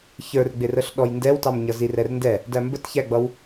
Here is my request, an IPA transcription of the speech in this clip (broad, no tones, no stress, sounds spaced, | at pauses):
ç ə˞ r ɡ͡b ɪ r ə ɬ ɗ ɔ j n d ɛ w t ɑ m ɲ ʌ z i r ɛ r n d ɛ | d æ m b ə t ç æ ɡ͡b ʌ w